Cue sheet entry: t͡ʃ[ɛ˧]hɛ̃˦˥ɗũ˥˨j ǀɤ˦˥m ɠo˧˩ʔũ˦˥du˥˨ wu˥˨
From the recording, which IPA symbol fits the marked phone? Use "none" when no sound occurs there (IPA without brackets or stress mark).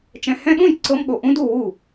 ɛ̃˧